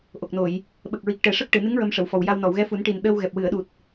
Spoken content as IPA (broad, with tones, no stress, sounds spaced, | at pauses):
ʔ o˨˩ k̚ n o˨˩˨ j | ɓ ə˨˩ k̚ ɹ i˨˩ k̚ ʈ ɛ˨˩ ʂ ə˦˥ k̚ ʈ ɨ˨˩˨ n ɨ˧˥ ŋ ɹ ə˧ m ʂ ə˨˩˨ w f ɔ˨˩ w j a˧ w n ɔ˨˩˨ w ɣ ɛ˧˥ f u˨˩˦ n ʈ i˨˩ n ɗ əː˧ w ɣ ɛ˨˩ p̚ w ɨ˨˩˨ ə̯ ɗ u˨˩ t̚